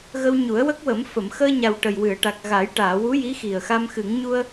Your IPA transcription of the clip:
ɣə˧wɲu˨˩˦ə̯wə˦˥k̚wə˨˩˦m fə˨˩˨mxəː˧ɲa˨˩w ʈə˨˩jwɨ˨˩˨ə̯ʈa˨˩k̚ɣa˨˩˦j ʈaː˨˩˨wu˧˥ ji˧˥xi˨˩ə̯ xa˧mxɨ˨˩˦ŋ ɲu˧ə̯

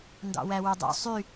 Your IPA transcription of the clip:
ndɑ̰wæwudˤṵ sˤy

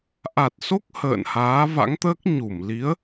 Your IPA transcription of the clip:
ʔa˨˩t̚so˦˥k̚ hə̰ː˧˨nhaː˨˦va̰˧˥ŋt̪əː˦˥k̚ ɲu˧˩m li˨˦ə̯

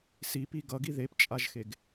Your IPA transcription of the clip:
sipi ɡʌɡi ðept͡ʃʼaʒxeɡ

